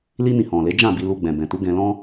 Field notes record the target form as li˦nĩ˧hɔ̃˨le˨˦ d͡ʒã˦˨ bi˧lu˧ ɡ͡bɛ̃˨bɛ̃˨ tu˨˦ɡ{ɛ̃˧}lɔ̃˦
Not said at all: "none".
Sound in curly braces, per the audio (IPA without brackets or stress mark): ɛ̃˧